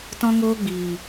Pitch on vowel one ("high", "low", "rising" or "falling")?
high